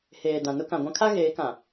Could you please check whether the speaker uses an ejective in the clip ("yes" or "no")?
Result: no